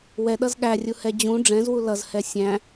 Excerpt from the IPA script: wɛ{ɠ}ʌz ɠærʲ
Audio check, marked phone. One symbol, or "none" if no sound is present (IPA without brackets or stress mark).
ɗ